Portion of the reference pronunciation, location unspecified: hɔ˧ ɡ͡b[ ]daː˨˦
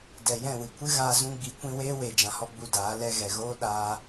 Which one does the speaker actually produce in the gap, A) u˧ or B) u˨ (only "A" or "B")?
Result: A